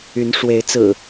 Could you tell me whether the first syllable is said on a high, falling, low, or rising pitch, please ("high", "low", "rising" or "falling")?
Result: rising